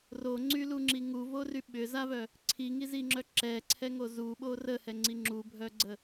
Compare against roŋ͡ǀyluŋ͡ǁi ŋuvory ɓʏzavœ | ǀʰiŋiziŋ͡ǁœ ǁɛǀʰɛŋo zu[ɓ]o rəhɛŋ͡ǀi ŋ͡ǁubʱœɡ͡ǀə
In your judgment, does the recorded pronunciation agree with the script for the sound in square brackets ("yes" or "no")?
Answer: yes